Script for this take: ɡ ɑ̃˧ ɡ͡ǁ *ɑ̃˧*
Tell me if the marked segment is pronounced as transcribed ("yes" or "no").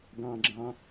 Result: yes